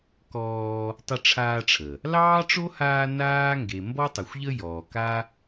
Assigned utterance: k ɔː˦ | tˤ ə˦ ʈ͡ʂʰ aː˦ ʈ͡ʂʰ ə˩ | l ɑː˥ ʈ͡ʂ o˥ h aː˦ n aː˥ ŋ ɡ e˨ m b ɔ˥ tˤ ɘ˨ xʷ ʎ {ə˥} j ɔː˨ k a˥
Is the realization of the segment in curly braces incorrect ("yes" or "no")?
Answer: no